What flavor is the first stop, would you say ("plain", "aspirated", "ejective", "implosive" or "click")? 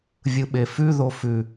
implosive